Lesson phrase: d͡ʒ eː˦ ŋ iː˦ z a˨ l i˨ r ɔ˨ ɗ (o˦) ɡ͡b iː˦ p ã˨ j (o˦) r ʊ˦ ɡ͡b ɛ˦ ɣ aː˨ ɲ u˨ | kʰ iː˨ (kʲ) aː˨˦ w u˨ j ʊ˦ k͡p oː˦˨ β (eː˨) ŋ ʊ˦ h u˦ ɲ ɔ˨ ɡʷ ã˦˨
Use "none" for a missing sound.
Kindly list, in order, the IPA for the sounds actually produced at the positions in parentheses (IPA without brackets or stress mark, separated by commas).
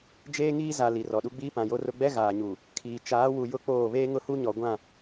u˦, o˦, t͡ʃ, eː˦